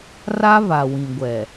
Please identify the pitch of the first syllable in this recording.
high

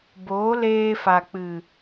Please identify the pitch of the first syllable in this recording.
rising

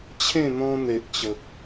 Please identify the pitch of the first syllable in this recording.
falling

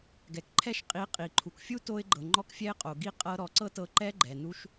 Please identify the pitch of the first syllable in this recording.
low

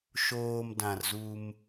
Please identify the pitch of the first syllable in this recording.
low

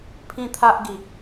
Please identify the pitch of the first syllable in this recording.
high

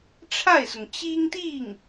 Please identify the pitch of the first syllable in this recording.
falling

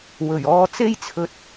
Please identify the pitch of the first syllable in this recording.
low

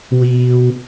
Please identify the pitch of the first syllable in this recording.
high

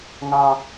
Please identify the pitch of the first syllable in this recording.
high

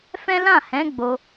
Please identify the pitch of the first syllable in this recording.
high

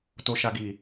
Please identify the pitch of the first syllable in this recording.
low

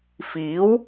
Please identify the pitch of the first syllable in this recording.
rising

